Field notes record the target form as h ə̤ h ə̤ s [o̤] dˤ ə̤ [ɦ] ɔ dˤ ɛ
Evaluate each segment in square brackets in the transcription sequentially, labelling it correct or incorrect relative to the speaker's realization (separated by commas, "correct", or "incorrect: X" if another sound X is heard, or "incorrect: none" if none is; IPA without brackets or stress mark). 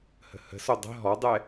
incorrect: o, correct